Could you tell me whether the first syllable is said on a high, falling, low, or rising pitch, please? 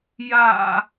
low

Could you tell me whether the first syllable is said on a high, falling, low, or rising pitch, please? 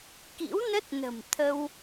rising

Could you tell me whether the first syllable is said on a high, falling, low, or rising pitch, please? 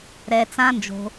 low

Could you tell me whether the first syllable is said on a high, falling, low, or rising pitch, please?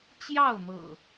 falling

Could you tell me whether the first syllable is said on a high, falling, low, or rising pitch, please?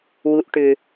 low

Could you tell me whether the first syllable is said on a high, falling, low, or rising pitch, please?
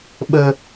low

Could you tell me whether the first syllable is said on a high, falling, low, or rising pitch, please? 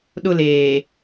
falling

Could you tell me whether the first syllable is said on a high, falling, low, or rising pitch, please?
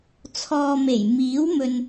low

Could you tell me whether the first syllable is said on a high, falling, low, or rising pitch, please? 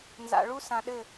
low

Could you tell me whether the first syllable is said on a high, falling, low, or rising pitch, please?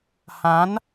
rising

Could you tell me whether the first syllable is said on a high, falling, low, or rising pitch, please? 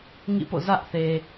falling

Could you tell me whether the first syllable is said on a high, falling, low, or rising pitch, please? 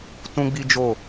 high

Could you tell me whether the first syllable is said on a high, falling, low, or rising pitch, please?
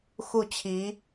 falling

